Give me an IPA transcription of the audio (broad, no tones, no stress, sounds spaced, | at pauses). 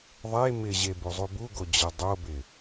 ðˤ e m ɪ ʑ e b u zˤ u b u ɡ o d͡ʑ ə dˤ o b ɪ